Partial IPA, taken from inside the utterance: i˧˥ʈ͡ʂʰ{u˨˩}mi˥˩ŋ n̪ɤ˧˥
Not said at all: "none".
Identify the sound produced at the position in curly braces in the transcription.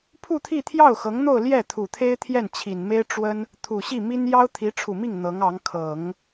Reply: u˨˩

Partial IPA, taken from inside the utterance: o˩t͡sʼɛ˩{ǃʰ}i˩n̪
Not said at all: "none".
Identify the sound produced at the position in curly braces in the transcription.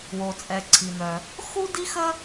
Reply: ǀʰ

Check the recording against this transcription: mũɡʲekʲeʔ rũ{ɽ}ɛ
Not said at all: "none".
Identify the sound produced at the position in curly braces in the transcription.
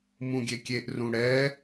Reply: ɽ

